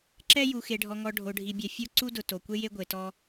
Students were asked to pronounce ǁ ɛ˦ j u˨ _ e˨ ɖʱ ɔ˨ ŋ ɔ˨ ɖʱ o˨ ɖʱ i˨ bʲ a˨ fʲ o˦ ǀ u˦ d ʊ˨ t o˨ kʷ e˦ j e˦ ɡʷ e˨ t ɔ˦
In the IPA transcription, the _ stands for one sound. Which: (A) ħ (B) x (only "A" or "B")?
B